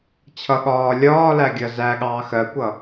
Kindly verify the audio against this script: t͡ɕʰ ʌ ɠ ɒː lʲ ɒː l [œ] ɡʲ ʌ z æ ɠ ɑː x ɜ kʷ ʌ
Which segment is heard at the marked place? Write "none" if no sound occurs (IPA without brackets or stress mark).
æ